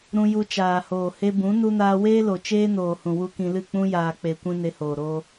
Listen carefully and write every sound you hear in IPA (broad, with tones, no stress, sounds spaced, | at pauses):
ɾ ũ˧ j u˧ t͡ʃ aː˨ h oː˨ h e˧ b ũ˨˦ n u˧ n aː˧ w eː˦ l o˨ t͡ʃ eː˦ n oː˨ h ũ˨ w u˧ k ĩ˧ l ɨ˦˨ k͡p ũ˧ j aː˨ k͡p e˨ kʷ ĩ˧ n e˧ h oː˨ ɾ oː˧